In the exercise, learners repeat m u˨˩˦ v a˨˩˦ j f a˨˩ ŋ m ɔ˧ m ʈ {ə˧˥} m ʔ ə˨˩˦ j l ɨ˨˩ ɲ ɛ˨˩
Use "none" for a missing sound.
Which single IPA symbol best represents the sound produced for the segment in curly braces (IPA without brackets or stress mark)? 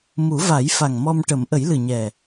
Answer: ə˨˩˦